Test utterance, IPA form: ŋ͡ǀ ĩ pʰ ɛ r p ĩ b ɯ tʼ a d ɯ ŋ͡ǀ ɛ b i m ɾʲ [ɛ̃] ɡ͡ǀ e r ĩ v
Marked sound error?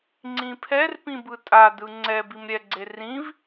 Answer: yes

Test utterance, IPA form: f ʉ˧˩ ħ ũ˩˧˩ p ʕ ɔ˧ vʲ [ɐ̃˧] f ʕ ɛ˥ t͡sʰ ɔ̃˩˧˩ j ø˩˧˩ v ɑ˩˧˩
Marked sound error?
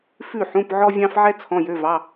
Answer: yes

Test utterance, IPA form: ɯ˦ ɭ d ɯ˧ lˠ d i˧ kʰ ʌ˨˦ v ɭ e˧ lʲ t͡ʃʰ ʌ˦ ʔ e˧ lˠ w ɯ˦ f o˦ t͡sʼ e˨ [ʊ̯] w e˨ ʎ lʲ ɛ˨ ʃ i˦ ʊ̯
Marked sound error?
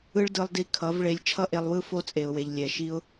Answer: no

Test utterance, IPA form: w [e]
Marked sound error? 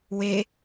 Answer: no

